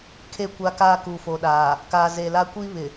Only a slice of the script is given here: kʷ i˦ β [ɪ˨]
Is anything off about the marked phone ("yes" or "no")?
no